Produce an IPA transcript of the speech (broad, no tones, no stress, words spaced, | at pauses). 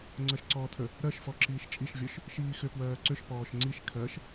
ŋ͡ǀɜʃǀɔːtʰə | ɾɜʃfɔ ǁiːʃt͡ʃʼiʃvʲɔʃ | ʃiːxʏ pwɜːǀʏʃ pɔːʃŋ͡ǀiʃ kʰɜʃ